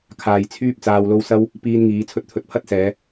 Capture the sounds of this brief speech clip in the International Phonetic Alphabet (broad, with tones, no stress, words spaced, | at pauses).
kʰaː˨j t͡sʰyː˥p̚ t͡saː˧wlo˥w sɐ˥w | piː˧nŋiː˨˧ t͡sʰɵ˧t̚t̪ʰɵ˨˥t̚pʰɐ˥t̚sɛː˨˧